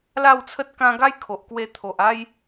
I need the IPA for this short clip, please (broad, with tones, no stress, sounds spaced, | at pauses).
l a˥˧ w t͡sʰ ə˦ t̚ k ã˧ ɡ a˦ j kʰ o˨ ʔ k w e˧ t̪ʰ o˨ ʔ a˦ j